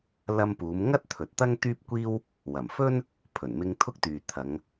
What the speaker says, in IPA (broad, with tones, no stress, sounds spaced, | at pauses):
l ɐ˧ m p uː˨˧ m ŋ ɐ˥ t̚ t̪ʰ ɵ˨ t̚ t̪ ɐ˥ ŋ t̪ yː˥ p̚ kʷ iː˥ w | w ɐ˨˩ m f ɵ˥ n | pʰ ɵ˨˩ n m ɪ˧ ŋ t̪ʰ ʊ˥ k̚ t̪ yː˨ t̪ʰ ɐ˨˧ ŋ